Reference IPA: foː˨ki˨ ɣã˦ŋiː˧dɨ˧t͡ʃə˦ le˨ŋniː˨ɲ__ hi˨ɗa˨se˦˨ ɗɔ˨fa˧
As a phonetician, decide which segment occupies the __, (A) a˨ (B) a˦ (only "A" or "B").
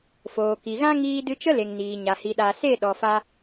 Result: A